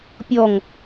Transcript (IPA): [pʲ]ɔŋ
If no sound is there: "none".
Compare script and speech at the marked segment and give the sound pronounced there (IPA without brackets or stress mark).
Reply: pʲ